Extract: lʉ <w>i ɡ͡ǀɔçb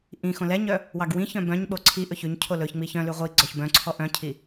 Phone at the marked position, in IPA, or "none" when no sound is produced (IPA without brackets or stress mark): ʁʷ